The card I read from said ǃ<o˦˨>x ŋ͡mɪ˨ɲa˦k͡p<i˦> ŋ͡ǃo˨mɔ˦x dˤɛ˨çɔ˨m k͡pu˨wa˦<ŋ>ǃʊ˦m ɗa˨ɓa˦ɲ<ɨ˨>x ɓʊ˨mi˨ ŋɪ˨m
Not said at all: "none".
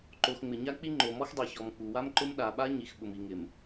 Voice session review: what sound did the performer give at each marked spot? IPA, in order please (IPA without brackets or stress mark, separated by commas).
o˨, i˦, m, i˨